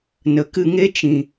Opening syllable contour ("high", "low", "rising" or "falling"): low